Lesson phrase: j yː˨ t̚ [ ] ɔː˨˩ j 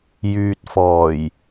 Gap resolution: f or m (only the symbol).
f